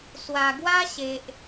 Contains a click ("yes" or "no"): no